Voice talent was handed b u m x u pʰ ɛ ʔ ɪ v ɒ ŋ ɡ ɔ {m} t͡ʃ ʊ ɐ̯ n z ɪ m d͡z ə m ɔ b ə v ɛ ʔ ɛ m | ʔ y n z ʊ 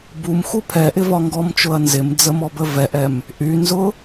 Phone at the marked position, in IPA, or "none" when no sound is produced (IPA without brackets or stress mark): m